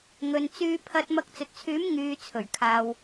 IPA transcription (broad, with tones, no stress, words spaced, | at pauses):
ŋɵ˨nt͡syː˧pʰɐ˧t̚ mɐ˧k̚t͡sɵ˨t̚t͡sʰyː˨˥m ŋyː˨˧t͡sʰɵ˨˩ɥ kʰaː˨w